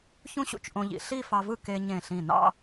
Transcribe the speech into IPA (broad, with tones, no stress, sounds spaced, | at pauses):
ç ũ˥ ɕ ṵ˧ t͡ʃ ʔ õ˧ ʎ ḭ˩˧ ɬ i˥˧ f ɑ˧ v ɯ˥˧ k e˧ ɲ ẽ˧˩ ɬ ĩ˧˩ n ɑ̰˥˧